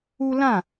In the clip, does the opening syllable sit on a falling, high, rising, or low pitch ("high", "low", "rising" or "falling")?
high